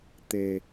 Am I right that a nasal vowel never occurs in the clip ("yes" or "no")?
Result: yes